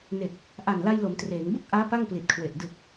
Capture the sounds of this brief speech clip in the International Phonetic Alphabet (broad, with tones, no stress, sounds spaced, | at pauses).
n e˨˩ k̚ | ʔ a˨˩ n l a˧ j l o˩˦ m t r eː˩˦ ŋ b u˥˩ k̚ ʔ aː˦˥ p a˥˩ ŋ p l i˨˩ t̚ kʰ w e˨˩ ʔ d ɯ˨˩ k̚